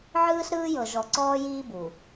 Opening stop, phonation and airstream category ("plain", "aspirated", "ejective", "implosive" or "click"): click